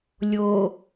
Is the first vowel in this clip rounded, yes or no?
yes